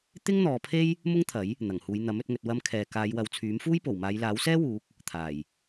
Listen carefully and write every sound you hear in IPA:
t̪ ɪ˥ ŋ n̪ ɔː˨˧ pʰ e˥ j | m ʊ˥ ŋ t̪ʰ ɐ˨˥ j | n̪ ɐ˨˩ ŋ h uː˨˧ j n̪ ɐ˨˥ m ɵ˧ t̚ ŋ ɵ˨ t̚ w ɐ˧ m kʰ ɛː˨ k aː˨˧ j w ɐ˨˧ w t͡sʰ yː˨˥ m f uː˥ j p o˨˩ w m aː˨˧ j l aː˨˥ w s ɛː˥ w uː˨˥ k̚ | t̪ʰ aː˨˩ j

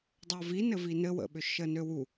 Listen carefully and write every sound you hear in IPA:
dˤ o v i n ɘ v i n ɘ w ə̰ ɓ ʏ ʃ ə n ø w u

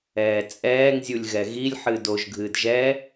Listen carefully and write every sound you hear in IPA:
ɛː t͡sʼ ɛː ŋ zʲ u lʲ ɣ ɛ ɣ i lʲ ħ ɨ d o ʒ ɡʱ ɨː d ʒ ɛ

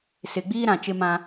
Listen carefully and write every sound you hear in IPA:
s ɪ˨ ɡ͡b iː˦ ɾ ã˨ t͡ʃ ɪ˦ m ã˦

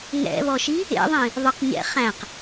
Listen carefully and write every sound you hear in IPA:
ŋ ɛ̰ β ɔ ʃ i | ḛ ðˤ ĩ | ðˤ ɪ q ɲ ɛ̰ χ æ̃ q

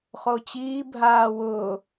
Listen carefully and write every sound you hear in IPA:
χ o t͡ɕ iː bʱ aː w ʊː

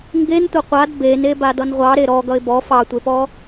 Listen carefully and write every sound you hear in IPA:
ŋ ɡ e n tʷ ʌ qʷ a d b e n e b a d ʌ n ʁʷ ɑ ɾ e ɾ ɔ ɡ ʌ ɪ̯ b ɔ f ɑ tʷ e p ɔ

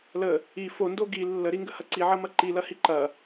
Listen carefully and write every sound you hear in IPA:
l ə | i f o n d o ɡ i lː ə ɾ i ŋ ɡ ə h ɐ ǀ i ʕ ɐ m ɐ ǃ i l ɐ h i ǃ ɐ

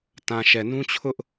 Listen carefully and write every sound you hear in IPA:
t ã˨ ʃ ɛ˨ n ũ˦ t͡ɕʰ ʊ˦ ʔ

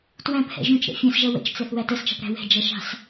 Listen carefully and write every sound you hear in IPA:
t w æ̃ p h ɛ̰ ʒ ũ t͡ʃ ɾ ɛ̰ fʲ ɛ̃ s ʒ ʌ w ə̰ t͡ʃ t͡s ɛ θ w æ t ə s t͡ʃ ɑ̤ p ɾ æ̤ w ɛ̤ d͡ʒ ʌ ʃ ɑ̤ s

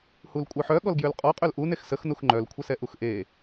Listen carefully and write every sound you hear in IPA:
h u l kʷʼ œ ħ œ ɠ ɔ l ɡ j ø l qʼ ɔ qʼ ø l ʔ u n e x s ə x n u x ŋ͡ǃ œ l kʷʰ ə s ɛ ʔ u x ʔ e

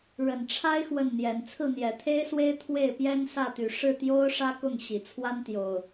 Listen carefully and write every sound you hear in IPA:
ɻ ə˨˩ n ʈ͡ʂʰ a˦ ɪ̯ x w ə˥˨ n n̪ j ɛ˨˦ n t͡sʰ ɹ̩˥˨ n̪ j ɛ˨˩ t̪ʰ e˦ ɪ̯ s w e˦ ɪ̯ t̪ʰ w e˥˨ ɪ̯ p j ɛ˦ n s ä˥˨ t̪ y˨˦ ʂ ɻ̩˥˨ t̪ j o˦ ʊ̯ ʂ ä˦ k ʊ˥˨ ŋ ɕ i˨˩ t͡sʰ w a˦ n t̪ j o˨˩ ʊ̯

